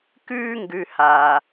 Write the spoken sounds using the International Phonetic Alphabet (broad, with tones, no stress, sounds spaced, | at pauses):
k ʉː˦ ŋ ɡ ʉ˨ h a˨